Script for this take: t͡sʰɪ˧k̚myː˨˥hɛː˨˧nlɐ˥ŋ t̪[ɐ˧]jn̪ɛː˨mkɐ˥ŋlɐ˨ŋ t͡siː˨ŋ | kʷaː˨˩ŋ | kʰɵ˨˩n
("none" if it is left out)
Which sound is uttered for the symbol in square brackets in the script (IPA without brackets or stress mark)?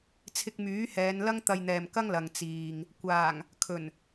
ɐ˧